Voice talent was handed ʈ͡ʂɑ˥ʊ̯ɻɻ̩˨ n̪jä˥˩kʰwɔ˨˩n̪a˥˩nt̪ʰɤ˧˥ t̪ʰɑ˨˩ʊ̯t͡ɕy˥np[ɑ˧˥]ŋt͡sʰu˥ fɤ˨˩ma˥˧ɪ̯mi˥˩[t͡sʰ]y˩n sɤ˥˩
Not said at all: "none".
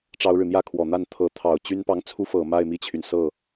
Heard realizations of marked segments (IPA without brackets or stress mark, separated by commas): ɑ˧˥, t͡ɕʰ